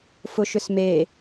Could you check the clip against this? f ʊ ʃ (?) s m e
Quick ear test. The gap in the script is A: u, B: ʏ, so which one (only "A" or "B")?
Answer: B